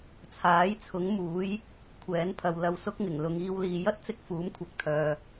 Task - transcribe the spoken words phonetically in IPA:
t͡sʰaː˨˥jt͡sʰʊ˨˥ŋmuː˨˥j | kʷʰɛː˨˥npʰɐ˨w lɐ˧wsʊ˥k̚ŋɪ˨˩ŋ lʊ˨ŋiː˧wliː˨ jɐ˥t̚t͡sɪ˧k̚ fuː˨˥mkʷʰɐ˨˥k̚t̪ʰœː˨

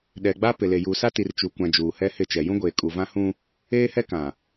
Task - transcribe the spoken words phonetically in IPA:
ɗɛ˨ɡ͡ba˦ pɪ˨le˨ juː˨sa˦ti˨r t͡ʃu˨kʷã˨ d͡ʒuː˨hɛ˦hɪ˦˨t͡ʃɛ˨ jũ˦ɡʷeː˨kʼu˨ vã˦hũ˦ | eː˦hɛ˦ kã˨

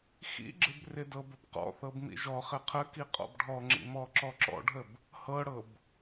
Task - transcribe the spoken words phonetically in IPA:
xḭɡ͡ǁɪb rɪdɤbəb qɔ̰θɤb mḭʒɔχɪ qʰəki qʼɔ̰bɖʱɔŋ͡ǁḭ mɔǁɔǁɔ̰ɖʱəb | hɤɽɤb

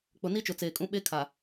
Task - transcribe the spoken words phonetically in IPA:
k͡pʊ˨ni˦t͡ʃʊ˨ t͡seː˨kʼũ˦ ɓe˦ kʰa˨

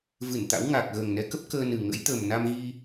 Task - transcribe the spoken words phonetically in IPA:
vɨ˧˩nt̪a̰˧˥wŋa˨˩k̚ ɣəː˨˩ŋnɛ˨˦kə˦˥p̚ kəː˧nɨ˨˩ ŋə̰˧˥jt̪ə˨˩m na˧mɣi˧

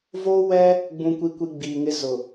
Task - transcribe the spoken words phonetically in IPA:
voː˦wɛ˦ | ɡ͡bũ˦kʷi˦kʷi˦ ɡ͡biː˨ŋɪ˦ zʊ˨

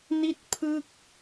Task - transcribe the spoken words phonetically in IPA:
ni˥˩t̚ pʰɯ˥˩k̚

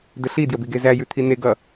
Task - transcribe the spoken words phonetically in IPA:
dəɬi djəbiɡezæ jʉt̪ʰine ɡʌ

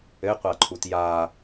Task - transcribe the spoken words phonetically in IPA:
ɘqʷaǃʰut ja

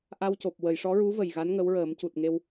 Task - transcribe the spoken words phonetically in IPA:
ʔa˧wco˨˩p̚ wə˨˩˨jʂɔ˧˥ɹu˧˥ və˨˩jɣa˧˥n ŋə˧˥wɹəː˨˩˦mcu˨˩t̚ŋe˧w

